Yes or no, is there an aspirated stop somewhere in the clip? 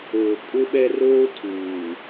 yes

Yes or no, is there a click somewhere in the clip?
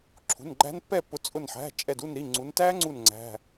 yes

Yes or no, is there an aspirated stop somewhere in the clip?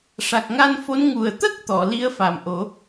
no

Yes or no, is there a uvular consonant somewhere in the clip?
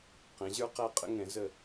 yes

